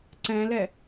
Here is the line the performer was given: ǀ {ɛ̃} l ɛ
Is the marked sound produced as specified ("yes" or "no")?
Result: yes